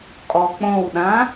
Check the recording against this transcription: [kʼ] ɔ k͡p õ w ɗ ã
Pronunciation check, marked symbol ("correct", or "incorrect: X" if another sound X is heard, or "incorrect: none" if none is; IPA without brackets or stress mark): correct